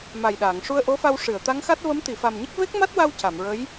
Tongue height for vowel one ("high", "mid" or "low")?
low